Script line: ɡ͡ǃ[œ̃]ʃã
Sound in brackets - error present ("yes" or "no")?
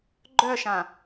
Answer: yes